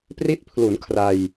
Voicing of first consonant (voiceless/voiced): voiceless